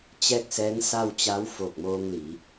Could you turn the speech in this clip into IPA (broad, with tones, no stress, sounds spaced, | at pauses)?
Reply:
t͡ɕ ɛː˥˨ k̚ s ɛː˧˥ ŋ s a˥˨ w t͡ɕ a˧˥ w f oː˧˩ k̚ m oː˧ ŋ l i˩˧